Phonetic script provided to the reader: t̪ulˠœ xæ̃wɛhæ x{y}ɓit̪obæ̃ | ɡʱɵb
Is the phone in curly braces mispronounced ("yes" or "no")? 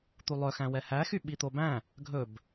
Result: no